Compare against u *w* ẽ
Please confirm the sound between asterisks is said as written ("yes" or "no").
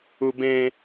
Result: no